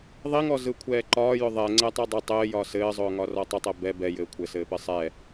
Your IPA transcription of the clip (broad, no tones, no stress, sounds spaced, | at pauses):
ðˤ i ŋ ɔ z ɯ kʷʰ ɛː ǃ ɒː j ʊ ðˤ ɛ ŋ͡ǀ ɛ tˤ i dˤ ʊ tˤ ɘː j ɒː s ɘː zˤ ʊː ŋ ɒ r ɔ tˤ ʊ tˤ ɛ b ɛ b ɛ j ɘː kʷʰ ɘ s ɘː p ɘ sˤ ɛ